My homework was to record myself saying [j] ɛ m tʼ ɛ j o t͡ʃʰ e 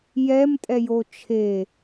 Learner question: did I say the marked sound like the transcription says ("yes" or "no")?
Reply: yes